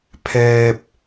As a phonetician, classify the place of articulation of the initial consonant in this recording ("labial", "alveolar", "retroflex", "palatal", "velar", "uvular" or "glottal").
labial